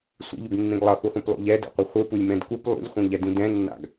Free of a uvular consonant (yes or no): no